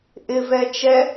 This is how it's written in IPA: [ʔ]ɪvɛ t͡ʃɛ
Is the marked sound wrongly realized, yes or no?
no